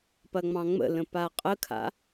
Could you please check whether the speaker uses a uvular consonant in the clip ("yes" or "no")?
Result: yes